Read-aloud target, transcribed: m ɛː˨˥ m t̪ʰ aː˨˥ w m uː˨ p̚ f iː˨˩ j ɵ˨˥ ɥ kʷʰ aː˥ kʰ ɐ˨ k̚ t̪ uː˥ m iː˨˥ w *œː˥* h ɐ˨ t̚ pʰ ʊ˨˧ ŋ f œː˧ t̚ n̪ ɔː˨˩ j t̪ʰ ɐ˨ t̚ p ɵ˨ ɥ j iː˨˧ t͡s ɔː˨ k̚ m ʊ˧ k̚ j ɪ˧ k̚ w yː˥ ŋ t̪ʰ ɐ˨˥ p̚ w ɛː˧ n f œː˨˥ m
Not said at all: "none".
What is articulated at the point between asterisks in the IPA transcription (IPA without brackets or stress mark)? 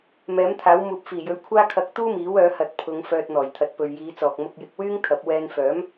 œː˨˧